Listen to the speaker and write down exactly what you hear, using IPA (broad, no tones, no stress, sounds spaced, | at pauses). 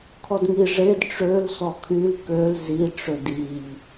kʰ ɔ d ŋ i ʐ e d ʈ͡ʂ ø l s ɔ kʰ y l k ø l z i ʈ͡ʂ ø d i ʎ